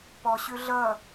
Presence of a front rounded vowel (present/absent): present